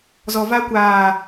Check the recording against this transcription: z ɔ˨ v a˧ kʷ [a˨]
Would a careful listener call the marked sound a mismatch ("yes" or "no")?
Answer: yes